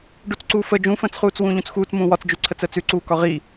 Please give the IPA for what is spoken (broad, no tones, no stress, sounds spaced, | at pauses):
ɖ u t͡s ǀ uː f ə d͡ʒ ũ f ə̃ː t͡s χ uː t͡s w ũː ʎ ũ t͡s x uː t͡s m ũː w ɒ t͡s d͡ʒ ʉ ǀʰ ə t͡s əː t͡s ʉ ǀ uː k ɒ ʁ i